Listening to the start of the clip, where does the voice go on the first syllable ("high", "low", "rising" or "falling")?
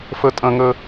high